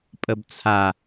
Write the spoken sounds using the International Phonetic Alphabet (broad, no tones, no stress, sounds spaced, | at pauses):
pʼ ə b t͡sʰ a